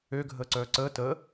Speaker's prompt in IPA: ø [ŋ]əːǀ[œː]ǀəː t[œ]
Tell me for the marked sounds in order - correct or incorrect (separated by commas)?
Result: incorrect, correct, incorrect